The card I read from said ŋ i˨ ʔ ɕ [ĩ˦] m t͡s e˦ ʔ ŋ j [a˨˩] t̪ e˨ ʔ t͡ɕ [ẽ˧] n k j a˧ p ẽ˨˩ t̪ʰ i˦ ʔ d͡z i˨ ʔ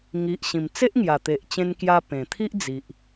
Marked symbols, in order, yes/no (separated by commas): no, yes, yes